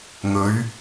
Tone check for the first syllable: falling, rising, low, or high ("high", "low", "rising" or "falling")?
rising